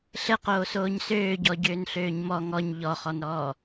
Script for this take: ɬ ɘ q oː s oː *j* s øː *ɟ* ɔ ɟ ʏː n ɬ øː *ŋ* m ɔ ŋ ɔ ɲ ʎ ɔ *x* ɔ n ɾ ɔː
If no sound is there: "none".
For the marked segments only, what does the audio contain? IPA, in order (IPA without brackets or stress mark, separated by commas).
ɲ, ɟ, ɲ, χ